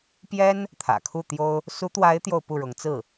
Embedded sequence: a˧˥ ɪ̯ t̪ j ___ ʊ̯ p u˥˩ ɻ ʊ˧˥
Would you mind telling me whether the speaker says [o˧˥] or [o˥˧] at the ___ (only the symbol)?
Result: o˥˧